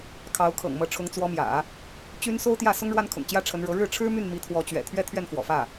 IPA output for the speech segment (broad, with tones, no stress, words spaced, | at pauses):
kʰɑ˧˥ʊ̯ kʰɤ̰˨˩ŋ mɤ˧˥ʈ͡ʂʰʊ˧˥ŋ t͡swɔ˧˥mjä̰˨˩˦ | t͡ɕy˥n so˥ʊ̯t̪jä˥˩sʊ˥ŋ ɻwa˥nkʰʊ̰˨˩ŋt͡ɕjä˥ ʈ͡ʂʰə˧˥nɻɤ˧˥ ɻɻ̩˥˩ʈ͡ʂʰɻ̩˥my˥˩n mi˧˥t̪ʰwɔ˧˥t͡ɕɥɛ̰˨˩t̪ʰɥɛ˥˧ t̪ʰɥɛ˥˩nfwɔ̰˨˩fä˥˩